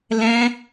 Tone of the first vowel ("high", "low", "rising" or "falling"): high